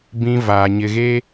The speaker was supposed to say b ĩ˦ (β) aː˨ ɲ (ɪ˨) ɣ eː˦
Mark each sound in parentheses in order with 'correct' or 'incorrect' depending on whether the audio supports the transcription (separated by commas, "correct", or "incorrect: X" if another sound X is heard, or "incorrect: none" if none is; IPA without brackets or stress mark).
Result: incorrect: v, correct